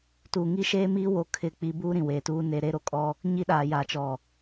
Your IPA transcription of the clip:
tuː˨ŋi˦ʃeː˦miː˦ wo˦kʰɪ˦˨k͡pi˦ buː˦ɾĩ˨weː˨tuː˦ ne˦ ɾe˦ɾo˦kʼɔ˦ | ɲi˦ɗaː˨ja˨t͡ʃɔ˨

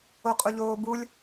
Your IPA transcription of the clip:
oqʼuʎoːbulʲ

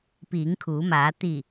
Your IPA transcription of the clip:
piː˩˧ŋkʰuː˩˧maː˩˧ t̪i˧˩

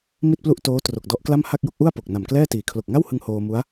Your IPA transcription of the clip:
mi˥˩t̚plu˥˩ʔtoː˦˥ tro˨˩k̚dɔ˦˥ʔkla˥˩m ha˥˩k̚jo˥˩k̚ʔu˥˩a̯po˨˩k̚ na˨˩mklɛː˥˩tiː˨˩ kʰlo˨˩k̚ŋa˥˩whɯ˧ŋ hoː˧mu˦˥a̯

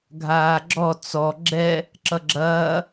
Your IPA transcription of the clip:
ɡʱaːɡ͡ǁɔ t͡sɔ ɡ͡ǁɛ | ǁʌɡ͡ǁɐː

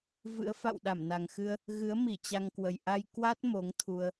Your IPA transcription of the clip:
vɨ̰˧˥ə̯ fa̰˧˨wɗa˧˩mna˨˩ŋxɨ˧ə̯ | ɣɨ˨˦ə̯mi˧˩ t͡ɕa˧ŋkwə˨˩j ʔa˧jkwa˦˥t̚ mo˨˦ŋt̪ʰu˧ə̯

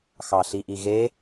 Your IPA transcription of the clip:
xɑɬiʔiɣe

